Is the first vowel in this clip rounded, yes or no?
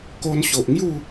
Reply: yes